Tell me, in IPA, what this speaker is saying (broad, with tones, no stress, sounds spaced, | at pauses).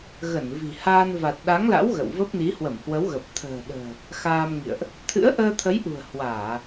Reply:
ɣ ə˧˩ n v i̤˨˩ h aː˧ n v a˨˩ t̚ ɗ a˨˦ ŋ l a̰˧˥ w ɣ ə̰˧˨ w v ə˦˥ p̚ n i˨˦ h w ə˧˩ m h w ə˨˦ w ɣ ə˨˩ p̚ t̪ʰ ə̤ː˨˩ ɗ ə̤ː˨˩ | x aː˧ m ŋ ḭ˧˨ ə̯ ʔ | t̪ʰ ɨ̰˧˥ ə̯ ʔ əː˧ t̪ʰ ə˨˦ j ʔ ṳ˨˩ ə̯ h w aː˧˩˨